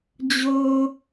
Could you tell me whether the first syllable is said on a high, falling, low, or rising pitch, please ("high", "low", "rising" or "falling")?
high